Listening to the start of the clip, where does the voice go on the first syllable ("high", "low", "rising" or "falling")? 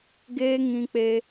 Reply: high